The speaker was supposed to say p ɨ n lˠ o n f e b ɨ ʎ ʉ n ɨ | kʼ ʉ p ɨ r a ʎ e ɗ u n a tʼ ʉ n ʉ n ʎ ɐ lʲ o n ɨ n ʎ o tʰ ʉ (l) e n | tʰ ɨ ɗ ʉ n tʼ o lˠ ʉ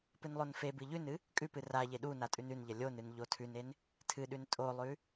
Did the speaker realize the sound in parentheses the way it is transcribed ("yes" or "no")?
no